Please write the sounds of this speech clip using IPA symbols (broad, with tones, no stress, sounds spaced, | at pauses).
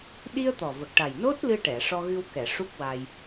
ɗ i˧ ə̯ t̪ ɔ˨˩ v ə˨˩ k̚ ʈ a˨˩ j n o˦˥ t̚ l ɨ˧ ʈ ɛ˨˩˨ ʂ ɔ˧ ɣ ɨ˧ w k ɛ˨˩˨ ʂ u˦˥ k̚ w a˧ j